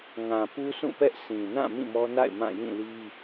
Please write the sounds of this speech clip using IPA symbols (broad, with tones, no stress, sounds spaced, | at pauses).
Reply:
ŋ ã˨ p u˦ sʰ ũ˦˨ p ɛ˦ ʔ sʰ ĩ˨ n ã˦˨ m ĩ˦˨ m ɔ˦ n a̰˦˨ ɪ̯ m ã˦˨ j ĩ˦˨ l i˦